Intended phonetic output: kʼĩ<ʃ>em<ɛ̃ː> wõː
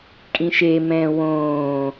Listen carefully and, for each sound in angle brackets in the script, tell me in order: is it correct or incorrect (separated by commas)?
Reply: correct, correct